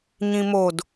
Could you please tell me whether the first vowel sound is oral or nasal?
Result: nasal